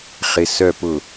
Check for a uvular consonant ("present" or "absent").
present